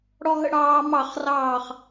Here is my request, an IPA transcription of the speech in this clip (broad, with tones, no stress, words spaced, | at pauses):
ɽɔ˧ɦə̰˧ ɽɑː˦ mɑ˦˨χrɑː˦˨χ